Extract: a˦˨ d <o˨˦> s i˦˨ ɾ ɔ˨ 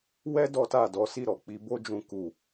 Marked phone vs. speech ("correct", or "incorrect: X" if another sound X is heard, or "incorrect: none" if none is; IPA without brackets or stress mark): incorrect: ɔ˨˦